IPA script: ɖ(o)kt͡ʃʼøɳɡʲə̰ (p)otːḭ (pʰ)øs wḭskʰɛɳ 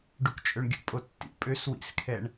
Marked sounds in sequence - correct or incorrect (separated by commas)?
incorrect, incorrect, incorrect